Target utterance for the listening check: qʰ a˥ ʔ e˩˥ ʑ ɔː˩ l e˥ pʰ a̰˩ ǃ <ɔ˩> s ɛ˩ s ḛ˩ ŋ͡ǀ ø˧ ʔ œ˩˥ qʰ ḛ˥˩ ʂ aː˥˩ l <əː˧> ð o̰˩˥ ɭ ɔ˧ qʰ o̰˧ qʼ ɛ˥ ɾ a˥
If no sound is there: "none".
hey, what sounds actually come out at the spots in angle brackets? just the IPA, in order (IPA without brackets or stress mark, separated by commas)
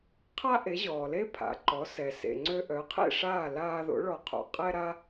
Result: ɔ˩˥, aː˧